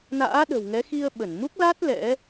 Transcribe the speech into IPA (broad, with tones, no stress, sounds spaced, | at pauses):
n a̰ː˧˥ ɗ ə̤˨˩ w ŋ ɛ˨˦ x i˧ ə̯ ɓ ə˧˩ n m u˦˥ k̚ l a˦˥ t̚ l ɛ̰˧˥